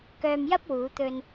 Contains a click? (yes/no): no